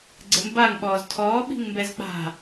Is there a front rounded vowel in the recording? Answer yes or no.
no